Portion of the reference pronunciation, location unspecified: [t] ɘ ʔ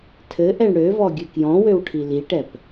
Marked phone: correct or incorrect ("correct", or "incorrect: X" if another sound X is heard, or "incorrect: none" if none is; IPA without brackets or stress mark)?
incorrect: tʰ